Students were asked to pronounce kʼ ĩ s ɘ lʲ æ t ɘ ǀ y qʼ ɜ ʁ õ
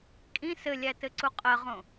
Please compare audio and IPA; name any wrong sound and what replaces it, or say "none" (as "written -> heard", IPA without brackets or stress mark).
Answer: y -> u